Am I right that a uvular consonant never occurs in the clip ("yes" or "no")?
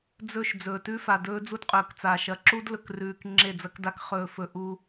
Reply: no